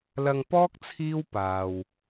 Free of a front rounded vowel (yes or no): yes